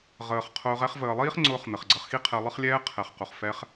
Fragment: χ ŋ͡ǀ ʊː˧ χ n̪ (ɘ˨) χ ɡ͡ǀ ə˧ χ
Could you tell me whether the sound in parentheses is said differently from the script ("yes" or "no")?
no